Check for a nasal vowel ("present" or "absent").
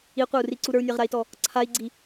absent